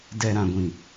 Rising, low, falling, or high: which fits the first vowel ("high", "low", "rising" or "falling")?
low